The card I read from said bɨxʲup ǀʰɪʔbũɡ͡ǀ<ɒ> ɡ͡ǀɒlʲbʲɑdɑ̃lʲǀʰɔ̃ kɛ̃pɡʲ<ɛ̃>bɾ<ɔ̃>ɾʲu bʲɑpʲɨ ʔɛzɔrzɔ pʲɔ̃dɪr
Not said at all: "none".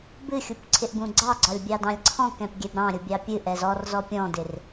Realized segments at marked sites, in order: ɑ, ɛ, ɑ̃

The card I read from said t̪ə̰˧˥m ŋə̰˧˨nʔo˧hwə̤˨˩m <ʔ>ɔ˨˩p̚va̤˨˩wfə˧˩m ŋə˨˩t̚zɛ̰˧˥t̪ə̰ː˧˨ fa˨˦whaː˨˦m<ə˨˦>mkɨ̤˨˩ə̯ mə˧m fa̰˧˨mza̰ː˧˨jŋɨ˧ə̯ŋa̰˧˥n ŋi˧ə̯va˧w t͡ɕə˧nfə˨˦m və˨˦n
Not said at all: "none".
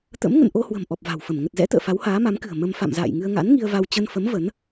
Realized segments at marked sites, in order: ʔ, a˨˦

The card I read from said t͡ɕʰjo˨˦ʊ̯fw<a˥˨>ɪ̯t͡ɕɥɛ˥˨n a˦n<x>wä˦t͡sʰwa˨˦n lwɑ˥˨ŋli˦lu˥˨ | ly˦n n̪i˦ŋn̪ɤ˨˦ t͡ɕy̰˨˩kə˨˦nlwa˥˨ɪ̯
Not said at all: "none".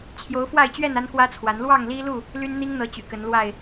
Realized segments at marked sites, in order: a˥˨, x

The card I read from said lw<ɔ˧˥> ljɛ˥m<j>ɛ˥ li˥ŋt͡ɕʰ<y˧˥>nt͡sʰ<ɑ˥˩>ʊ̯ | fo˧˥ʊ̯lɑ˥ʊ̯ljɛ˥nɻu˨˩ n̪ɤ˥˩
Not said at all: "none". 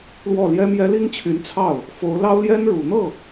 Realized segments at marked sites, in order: ɔ˥˩, j, y˧˥, ɑ˥˩

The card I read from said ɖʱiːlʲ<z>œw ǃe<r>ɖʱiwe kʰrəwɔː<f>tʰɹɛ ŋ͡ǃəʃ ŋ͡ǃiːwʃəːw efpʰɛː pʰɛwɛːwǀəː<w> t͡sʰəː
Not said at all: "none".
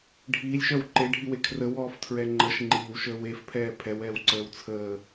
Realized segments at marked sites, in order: ʃ, none, f, w

